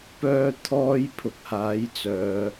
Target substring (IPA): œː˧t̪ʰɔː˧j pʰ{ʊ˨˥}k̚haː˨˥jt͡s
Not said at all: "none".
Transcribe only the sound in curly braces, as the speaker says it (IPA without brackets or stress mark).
ʊ˧